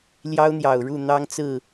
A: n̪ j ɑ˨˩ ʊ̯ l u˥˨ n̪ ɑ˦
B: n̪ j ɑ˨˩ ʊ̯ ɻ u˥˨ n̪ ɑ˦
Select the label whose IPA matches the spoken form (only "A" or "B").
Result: B